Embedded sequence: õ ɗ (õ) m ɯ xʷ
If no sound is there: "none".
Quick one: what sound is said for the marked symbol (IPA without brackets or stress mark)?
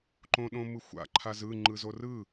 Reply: õ